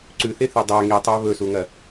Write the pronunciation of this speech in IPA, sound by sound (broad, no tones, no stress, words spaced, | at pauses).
ǀʉθeθe dˤa ŋitˤa βɵsuŋɐ